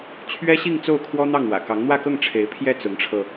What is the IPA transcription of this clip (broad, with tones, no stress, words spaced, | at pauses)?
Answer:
t͡ɕʰɥɛ˥ɕi˥˧ŋ t͡so˥˩ʊ̯kʰwɔ˥n̪ɑ˥˩ŋ wä̰˨˩ kɑ˧˥ŋn̪wä˥˧kɤ˥˩ŋ ʈ͡ʂʰe˧˥ɪ̯pʰjɛ˥˩ t͡sʊ˧˥ŋʈ͡ʂʰɤ˧